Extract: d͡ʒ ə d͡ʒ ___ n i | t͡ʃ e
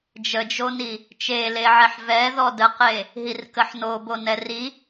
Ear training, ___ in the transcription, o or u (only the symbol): o